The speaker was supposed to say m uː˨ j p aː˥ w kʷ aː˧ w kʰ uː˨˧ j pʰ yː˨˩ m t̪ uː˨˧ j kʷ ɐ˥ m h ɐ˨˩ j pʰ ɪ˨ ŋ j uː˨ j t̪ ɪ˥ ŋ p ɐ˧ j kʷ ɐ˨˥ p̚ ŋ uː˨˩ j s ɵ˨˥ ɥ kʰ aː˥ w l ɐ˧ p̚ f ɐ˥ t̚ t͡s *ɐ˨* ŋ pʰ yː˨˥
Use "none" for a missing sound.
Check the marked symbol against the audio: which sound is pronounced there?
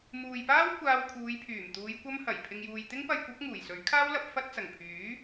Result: ɐ˨˩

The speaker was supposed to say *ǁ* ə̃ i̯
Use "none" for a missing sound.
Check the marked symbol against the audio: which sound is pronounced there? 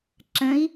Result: ǁ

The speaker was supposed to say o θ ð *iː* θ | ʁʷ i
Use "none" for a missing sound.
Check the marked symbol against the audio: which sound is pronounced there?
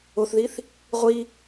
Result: i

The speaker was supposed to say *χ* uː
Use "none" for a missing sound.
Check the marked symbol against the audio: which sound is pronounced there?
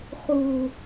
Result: χ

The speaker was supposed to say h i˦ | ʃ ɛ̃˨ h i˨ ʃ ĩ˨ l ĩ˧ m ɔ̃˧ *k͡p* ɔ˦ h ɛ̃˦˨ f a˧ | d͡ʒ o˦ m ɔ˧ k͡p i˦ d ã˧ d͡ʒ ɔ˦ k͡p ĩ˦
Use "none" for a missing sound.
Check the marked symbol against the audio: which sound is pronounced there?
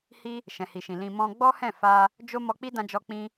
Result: ɡ͡b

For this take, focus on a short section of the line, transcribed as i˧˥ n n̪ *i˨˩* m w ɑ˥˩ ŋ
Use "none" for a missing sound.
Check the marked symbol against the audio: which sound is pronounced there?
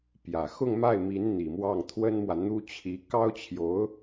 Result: i˨˩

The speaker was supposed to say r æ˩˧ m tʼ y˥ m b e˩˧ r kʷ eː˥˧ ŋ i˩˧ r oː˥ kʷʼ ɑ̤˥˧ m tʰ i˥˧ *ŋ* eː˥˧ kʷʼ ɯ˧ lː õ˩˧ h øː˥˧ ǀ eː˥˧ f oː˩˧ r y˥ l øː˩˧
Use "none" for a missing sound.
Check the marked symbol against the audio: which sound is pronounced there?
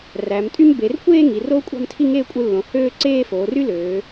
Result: ŋ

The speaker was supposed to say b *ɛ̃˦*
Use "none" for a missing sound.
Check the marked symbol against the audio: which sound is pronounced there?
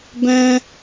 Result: ɛ̃˦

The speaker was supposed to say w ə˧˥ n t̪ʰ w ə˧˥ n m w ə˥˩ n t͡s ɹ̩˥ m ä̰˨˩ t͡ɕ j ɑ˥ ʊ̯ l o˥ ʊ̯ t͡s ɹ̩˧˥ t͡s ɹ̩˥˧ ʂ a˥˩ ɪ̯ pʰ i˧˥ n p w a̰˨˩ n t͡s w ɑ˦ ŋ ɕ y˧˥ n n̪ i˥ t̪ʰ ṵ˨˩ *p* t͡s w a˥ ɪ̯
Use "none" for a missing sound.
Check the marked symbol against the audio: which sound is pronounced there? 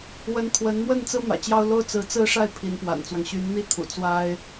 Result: none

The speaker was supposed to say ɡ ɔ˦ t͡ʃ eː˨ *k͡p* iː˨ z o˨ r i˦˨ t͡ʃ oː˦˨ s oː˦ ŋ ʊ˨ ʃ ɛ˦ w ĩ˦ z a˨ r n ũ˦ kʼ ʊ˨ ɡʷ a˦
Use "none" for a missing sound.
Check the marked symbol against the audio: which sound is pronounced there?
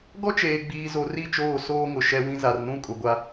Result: ɡ͡b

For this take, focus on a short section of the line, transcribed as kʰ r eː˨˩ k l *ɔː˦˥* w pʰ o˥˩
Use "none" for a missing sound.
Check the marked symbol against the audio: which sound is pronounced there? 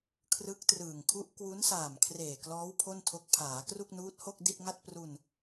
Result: ɔː˦˥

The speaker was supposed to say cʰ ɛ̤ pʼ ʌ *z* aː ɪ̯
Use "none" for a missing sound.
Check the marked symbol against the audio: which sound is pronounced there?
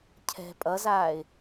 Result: z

